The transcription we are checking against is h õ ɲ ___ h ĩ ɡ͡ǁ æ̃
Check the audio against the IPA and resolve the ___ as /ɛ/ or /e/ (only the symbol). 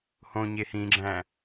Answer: e